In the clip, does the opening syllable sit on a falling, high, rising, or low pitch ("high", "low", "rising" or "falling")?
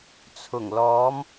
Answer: low